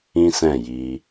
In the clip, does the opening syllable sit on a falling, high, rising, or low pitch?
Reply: high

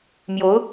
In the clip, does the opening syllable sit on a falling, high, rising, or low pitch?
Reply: rising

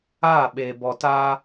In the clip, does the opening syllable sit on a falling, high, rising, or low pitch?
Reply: falling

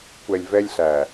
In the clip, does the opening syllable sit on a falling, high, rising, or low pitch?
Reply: low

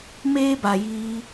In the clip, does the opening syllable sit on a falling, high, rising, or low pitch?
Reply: high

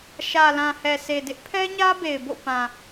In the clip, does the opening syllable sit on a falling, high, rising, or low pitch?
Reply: low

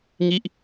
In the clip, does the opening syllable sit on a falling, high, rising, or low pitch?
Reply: falling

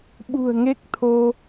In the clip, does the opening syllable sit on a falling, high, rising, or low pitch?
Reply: low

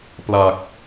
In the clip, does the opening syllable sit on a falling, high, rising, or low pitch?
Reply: low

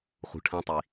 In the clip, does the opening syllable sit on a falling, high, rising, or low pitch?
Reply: low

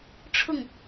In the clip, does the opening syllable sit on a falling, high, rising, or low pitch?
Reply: falling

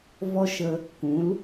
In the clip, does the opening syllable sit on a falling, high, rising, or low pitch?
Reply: high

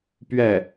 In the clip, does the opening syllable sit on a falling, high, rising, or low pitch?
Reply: falling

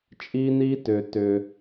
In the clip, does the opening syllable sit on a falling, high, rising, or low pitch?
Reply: high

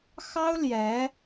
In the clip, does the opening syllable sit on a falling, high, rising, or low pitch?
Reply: high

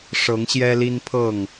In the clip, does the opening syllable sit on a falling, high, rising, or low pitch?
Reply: rising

